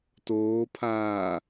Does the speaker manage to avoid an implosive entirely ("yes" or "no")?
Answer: yes